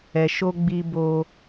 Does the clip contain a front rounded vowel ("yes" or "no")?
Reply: no